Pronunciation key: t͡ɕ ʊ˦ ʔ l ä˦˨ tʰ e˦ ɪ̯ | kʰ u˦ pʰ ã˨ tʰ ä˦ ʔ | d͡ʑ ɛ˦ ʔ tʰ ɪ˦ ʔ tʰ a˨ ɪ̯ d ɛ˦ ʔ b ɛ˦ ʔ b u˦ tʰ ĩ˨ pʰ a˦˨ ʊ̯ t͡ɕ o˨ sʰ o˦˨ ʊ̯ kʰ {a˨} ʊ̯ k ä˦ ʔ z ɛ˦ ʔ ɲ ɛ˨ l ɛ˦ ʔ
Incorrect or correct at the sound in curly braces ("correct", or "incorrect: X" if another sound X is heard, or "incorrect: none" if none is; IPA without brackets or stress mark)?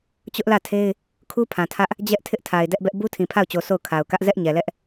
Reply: correct